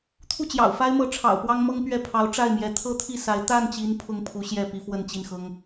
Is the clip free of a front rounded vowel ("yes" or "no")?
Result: yes